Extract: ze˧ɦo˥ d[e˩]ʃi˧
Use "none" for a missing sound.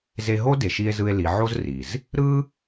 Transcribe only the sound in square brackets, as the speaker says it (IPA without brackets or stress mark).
e˩